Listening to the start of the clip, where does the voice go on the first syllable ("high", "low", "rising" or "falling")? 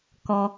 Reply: high